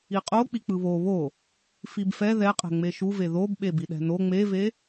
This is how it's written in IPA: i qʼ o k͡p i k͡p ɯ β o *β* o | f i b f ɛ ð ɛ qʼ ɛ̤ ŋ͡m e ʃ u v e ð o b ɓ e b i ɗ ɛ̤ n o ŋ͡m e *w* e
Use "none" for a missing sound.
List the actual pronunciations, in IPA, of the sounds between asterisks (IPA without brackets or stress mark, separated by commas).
β, v